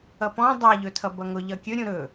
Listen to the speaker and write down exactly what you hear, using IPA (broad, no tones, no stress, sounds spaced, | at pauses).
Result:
ʌ p ɔ̃ dˤ a ʎ ɵ tʰ ʌ b ʌ ŋ ʊ ʎ ʌ kʲ ɵ ɾʲ ũ ɾ ɵ